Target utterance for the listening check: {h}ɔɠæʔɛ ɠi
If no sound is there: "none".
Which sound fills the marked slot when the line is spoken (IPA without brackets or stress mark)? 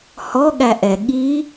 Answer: h